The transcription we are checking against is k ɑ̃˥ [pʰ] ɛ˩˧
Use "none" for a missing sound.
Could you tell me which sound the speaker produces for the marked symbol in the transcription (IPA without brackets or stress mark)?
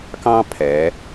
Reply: pʰ